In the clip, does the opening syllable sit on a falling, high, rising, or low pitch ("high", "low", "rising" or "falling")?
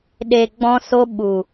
low